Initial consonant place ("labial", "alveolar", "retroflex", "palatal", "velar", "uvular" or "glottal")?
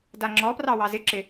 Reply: alveolar